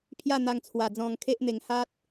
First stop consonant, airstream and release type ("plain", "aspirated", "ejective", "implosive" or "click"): aspirated